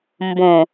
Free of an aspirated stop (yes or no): yes